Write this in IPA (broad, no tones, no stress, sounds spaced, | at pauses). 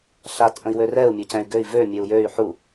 ɬ a t ʔ ə̃ i̯ w ø r ɛ u̯ mʲ ø c ɛ̃ y̯ ɡ ø i̯ v ø mʲ e u̯ j ø y̯ ħ u